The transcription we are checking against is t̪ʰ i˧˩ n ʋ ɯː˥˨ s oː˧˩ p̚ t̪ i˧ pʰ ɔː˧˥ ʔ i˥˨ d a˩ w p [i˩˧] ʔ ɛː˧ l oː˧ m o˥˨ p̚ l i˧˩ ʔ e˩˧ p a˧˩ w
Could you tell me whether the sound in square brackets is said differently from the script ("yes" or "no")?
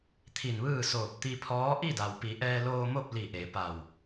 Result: no